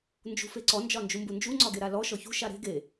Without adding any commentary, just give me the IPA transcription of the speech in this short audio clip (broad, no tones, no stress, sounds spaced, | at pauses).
n d͡ʒ ṳ f e ǀ ɔ n d͡ʒ ɒ n d͡ʒ u m b u n d͡ʒ u ŋ͡ǀ ɒ ɡ e ɾ a l ɔ ʃ ɔ ç ṳ ʃ a ɾ e̤ ɡ e